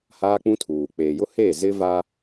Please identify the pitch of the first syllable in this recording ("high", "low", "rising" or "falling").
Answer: high